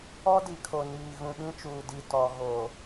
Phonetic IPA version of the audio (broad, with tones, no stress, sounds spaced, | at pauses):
ɔ˦ d i˨ kʰ o˨ n iː˨ ɣ ũ˨ ɓ ĩ˦ t͡ʃ uː˨ d i˨ t ɔ˨ ɣ o˨